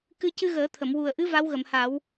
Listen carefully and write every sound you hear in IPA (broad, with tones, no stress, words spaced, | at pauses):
kɨ˧ cɨ˧ɣəː˨˩˦t̪ʰə˨˩˨m wu˨˩ə̯ʔɨ˧˥ va˧˥wɣə˨˩˨mha˨˩˦w